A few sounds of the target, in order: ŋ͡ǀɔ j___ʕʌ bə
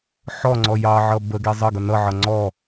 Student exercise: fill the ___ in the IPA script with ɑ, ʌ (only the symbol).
ɑ